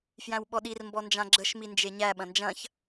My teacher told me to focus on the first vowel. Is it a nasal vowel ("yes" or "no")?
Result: yes